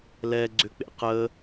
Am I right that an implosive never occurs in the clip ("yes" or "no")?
yes